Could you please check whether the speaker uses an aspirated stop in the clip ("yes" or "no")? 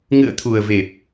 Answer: yes